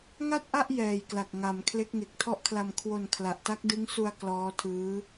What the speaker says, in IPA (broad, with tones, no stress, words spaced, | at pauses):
ŋa˥˩t̚ʔa˥˩ʔ jɛː˨˩jkla˨˩k̚ ŋa˩˦m kʰle˦˥k̚ŋe˨˩k̚tʰɔ˥˩ʔkʰla˧m kʰwo˧n kʰla˨˩ʔta˦˥k̚dɯ˦˥ŋsu˧a̯ klɔː˦˥tʰɯː˦˥